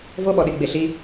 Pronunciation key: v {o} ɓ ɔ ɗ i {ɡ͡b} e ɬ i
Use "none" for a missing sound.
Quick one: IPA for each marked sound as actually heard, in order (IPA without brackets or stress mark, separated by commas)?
o, ɡ͡b